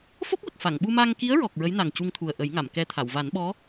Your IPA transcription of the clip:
f o˦˥ k̚ w ə˨˩ k̚ f a˨˩˨ ŋ ɓ u˧ m aː˧ ŋ k i˧˥ ə̯ ɹ ɔ˨˩ k̚ ɹ ə˧˥ j n a˨˩ ŋ c u˧ ŋ t̪ʰ u˨˩ ə̯ ʔ ə˨˩˦ j ŋ a˨˩˨ m k ɛ˧ t̪ʰ a˨˩˨ w v a˨˩˦ n ɓ ɔ˧˥

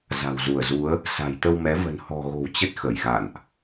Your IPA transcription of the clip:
z a̤˨˩ w z u˧˩ ə̯ z u˨˦ ə̯ | s a̤˨˩ j t̪ ə˧ w m ɛ˨˦ v ə̤˨˩ n h ɔ̤˨˩ ɣ o̤˨˩ w t͡ɕ ə˦˥ t̚ x ə˧˩ j ɣ a̰˧˨ n ʔ

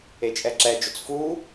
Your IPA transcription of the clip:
e t͡ʃʼ ɛ ǁ ɛ d͡ʒ ʊ t͡s f u

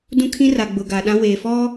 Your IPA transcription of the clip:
d ũ˦ kʰ ĩ˦ r a˨ ɡ͡b ʊ˨ ɡ aː˨ ɗ ã˦ w eː˨ f ɔ˦

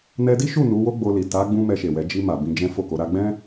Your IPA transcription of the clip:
n ɛ˧ d i˦ ʃ u˦˨ n u˨˦ w o˦ ɡ͡b o˧ l i˨ t a˨˦ ɡ͡b ũ˧ m ɛ˧ ʃ e˨ w ɛ˨˦ d͡ʒ i˧ m a˨ b ĩ˧ d͡ʒ ɛ̃˦ f o˦˨ k o˨˦ ɾ a˦ ɡ͡b ɛ̃˦

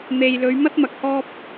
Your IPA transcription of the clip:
n̪ e˨ j l ɵ˨˧ ɥ m ɐ˥ t̚ m ɐ˨ k̚ h ɔː˧ p̚

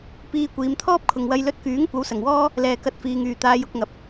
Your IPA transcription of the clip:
p iː˧ kʷ iː˨˧ m t̪ʰ ɔː˥ p̚ kʰ ʊ˨ ŋ w ɐ˧ j l ɵ˧ t̚ k yː˨˥ ŋ kʷ ɐ˨˥ w s ɐ˨˩ ŋ w ɔː˥ | l ɛː˨ k ɐ˧ t̚ f iː˨ ŋ yː˨˩ t̪ aː˧ j ʊ˧ k̚ ŋ ɐ˨˥ p̚

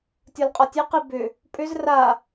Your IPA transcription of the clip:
tʲ ɒ l qʼ ɒ tʲ e q i b ʏ | pʼ ʏ z r a

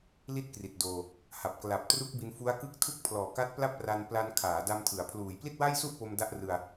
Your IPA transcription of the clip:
l i˥˩ t̚ k r i˨˩ t̚ d oː˧ | h a˨˩ p̚ k l a˨˩ p̚ t r u˦˥ k̚ b i˧ n f u˦˥ a̯ k ɯ˥˩ k̚ tʰ u˥˩ k̚ pʰ l ɔː˨˩ k a˦˥ t̚ p l a˥˩ p̚ r a˧ n p l a˧ n kʰ aː˩˦ d a˧ m tʰ ɯ˩˦ a̯ pʰ l uː˩˦ j p l i˥˩ t̚ w a˥˩ j s u˥˩ ʔ p o˧ m d a˦˥ ʔ r ɯ˧ a̯

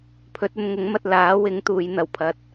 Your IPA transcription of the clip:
pʰ ɵ˨˥ t̚ ɵ˧ n ŋ ʊ˨˥ ŋ m ɐ˧ t̚ l aː˨˥ w ɪ˨˥ ŋ t̪ uː˨˧ j n̪ ɐ˨˩ w pʰ ɐ˨˥ t̚

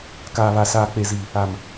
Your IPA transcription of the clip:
k aː˨ β a˨ s aː˨ k͡p e˨ z i˨ | a˨ m

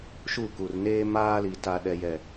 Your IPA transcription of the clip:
ʃ u˦˨ k u˨ r n eː˦ m aː˦ l i˨ t a˨ ɗ ɛ˨ j ɛ˨

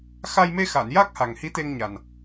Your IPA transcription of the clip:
x a˧ j m e˧ x a˨˩˨ n j a˦˥ k̚ h a˨˩ ŋ h i˧˥ t̪ e˧ ŋ ɲ a˨˩ n

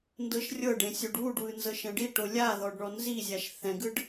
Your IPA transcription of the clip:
n d ɤ ʃ rʲ ɤ ɖ ẽ sʲ o ɖ w u ɖ w ɯ n z ɤ ʃ ɛ̃ ɖ i ʈ o lʲ a ð ɔ ɖ ɳ ɔ n z i zʲ a ʃ θ ɛ̃ ɡ ɯ ɖ

